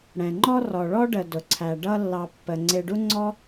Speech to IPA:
ɽ ɛ̃˩ ŋ͡ǃ ɔ˦ r ɔ˩ ɭ ɔ˦ ɖ ə˩ d ʊ˩ ǀʰ æ˩ ɖ ʌ˦ lː ɑ˨ pː ə˩ ŋ͡ǀ ɪ˨ ɖ u˦ ŋ͡ǀ ɔ˥

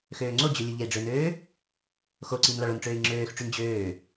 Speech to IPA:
x øː ŋ͡ǀ o d͡ʑ ø lʲ u ʎ e i̯ ɖ͡ʐ ø n øː | x o ǀ i n l ɑ ɭ o n ʈ͡ʂ øː i̯ ŋ͡ǁ øː x ʈ͡ʂ y n d͡ʑ øː

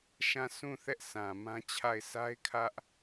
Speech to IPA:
ʃ ã˦˨ sʰ ũ˦˨ θ ɛ˦ ʔ s ã˨ m ã˦ t͡ɕʰ a˦˨ ɪ̯ s a˦ ɪ̯ kʰ ä˦ ʔ

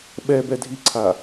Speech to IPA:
ɓ ɛ b ɛ dʱ i ǀʰ a

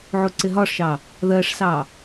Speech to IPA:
ʕ u ǀ ɪ ɦ ɒ ʂ ʃ ɑ | ð ɜ ʂ s ɑ

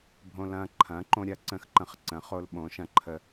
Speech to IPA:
bʱ õ˧ l ɐ̃ː˧ ǃʰ ɐ̃ː˨˥ ǃ õ˧ ɾʲ ɐ˨˥ ǀ ə̃˧ x ǃ ə̃˧ χ ǀ ə̃˨˥ χ o˧ l ɓ õ˨˥ ʃ ɐ̃˨˥ ǃʰ ə˧

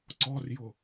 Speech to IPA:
ǀ ɔ r j ʊ

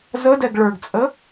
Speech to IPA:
z ə d ɛ ɡ ɭ ə˞ ɡ t͡sʼ ə

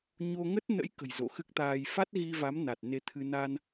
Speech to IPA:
ɲ o˧ ŋ ə˦˥ t̚ n ə̰˧˥ j k ə̤˨˩ j z o̰˧˨ x ɨ˦˥ k̚ t̪ aː˧ j f a˦˥ t̚ ɣ i˧ v a˨˦ m n a˨˩ t̚ n e˨˦ t̪ʰ ɨ˧ n a˧ n

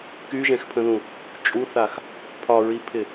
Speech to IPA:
k y ʒ ɛ̃ x pʰ ə̃ ð ũ | t͡ʃʼ u θ a x | pʰ ɒ ɹ i pʰ ɪ

